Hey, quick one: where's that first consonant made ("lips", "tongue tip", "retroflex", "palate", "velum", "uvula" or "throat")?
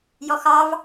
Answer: palate